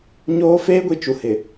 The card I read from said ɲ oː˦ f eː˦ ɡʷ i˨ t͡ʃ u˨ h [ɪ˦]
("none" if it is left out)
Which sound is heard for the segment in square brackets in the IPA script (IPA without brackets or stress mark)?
ɪ˨